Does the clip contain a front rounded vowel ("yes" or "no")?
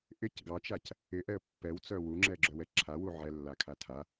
yes